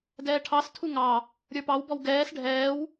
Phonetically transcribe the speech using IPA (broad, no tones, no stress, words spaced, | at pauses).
dɛːʈʰɑstʰu ŋɑ | ɾʲə˞pɑwbɔw ɡɛːs ɖʱɛːw